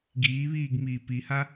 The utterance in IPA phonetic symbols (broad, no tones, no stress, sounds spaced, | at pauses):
ɡ iː β iː ɡ m iː p i h a